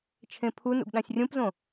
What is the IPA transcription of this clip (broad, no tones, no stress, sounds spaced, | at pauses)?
t͡ʃʰ ẽ pʰ u n ṵ ɡ ɗ ã sʲ rʲ ũ p z õ